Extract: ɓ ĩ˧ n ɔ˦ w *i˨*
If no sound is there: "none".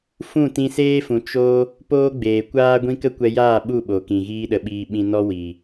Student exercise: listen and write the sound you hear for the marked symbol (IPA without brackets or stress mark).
i˨